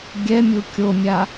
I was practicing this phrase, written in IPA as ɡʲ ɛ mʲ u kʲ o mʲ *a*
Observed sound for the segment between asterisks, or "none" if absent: a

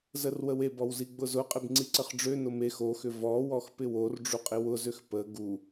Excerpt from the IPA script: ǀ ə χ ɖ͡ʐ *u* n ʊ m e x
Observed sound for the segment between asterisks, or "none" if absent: ø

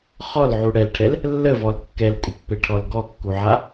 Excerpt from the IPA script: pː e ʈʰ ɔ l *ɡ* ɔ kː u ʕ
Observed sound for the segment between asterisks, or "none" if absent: ɡ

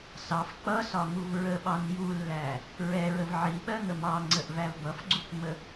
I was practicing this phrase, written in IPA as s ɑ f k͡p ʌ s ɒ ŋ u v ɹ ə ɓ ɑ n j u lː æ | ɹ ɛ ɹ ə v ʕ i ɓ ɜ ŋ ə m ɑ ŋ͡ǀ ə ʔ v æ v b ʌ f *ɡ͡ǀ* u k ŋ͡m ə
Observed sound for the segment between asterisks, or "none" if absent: ɡ͡ǀ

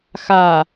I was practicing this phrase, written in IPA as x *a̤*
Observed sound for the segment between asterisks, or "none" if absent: a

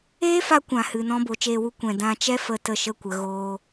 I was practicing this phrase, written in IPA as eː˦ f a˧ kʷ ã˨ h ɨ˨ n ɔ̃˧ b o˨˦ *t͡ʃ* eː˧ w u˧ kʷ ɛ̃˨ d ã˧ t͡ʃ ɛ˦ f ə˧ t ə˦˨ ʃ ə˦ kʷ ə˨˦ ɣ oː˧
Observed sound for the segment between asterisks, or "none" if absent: t͡ʃ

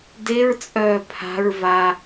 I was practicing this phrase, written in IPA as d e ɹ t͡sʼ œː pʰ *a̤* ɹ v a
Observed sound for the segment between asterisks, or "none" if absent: a̤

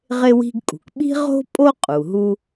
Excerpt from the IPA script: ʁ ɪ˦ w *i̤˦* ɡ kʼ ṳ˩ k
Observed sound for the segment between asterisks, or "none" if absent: i̤˦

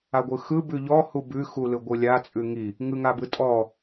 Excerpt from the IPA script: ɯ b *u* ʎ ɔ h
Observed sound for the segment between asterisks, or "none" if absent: ʉ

